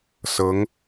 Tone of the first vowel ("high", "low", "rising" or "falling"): rising